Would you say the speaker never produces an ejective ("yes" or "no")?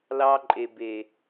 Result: no